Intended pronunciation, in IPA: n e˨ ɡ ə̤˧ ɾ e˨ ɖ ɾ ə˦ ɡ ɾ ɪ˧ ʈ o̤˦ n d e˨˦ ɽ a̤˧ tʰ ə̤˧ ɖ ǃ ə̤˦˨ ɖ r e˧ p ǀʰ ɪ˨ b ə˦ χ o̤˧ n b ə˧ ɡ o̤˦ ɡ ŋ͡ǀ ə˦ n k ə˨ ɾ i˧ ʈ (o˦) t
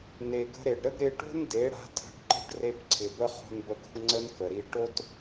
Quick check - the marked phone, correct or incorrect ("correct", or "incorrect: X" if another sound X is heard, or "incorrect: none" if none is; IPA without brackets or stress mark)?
correct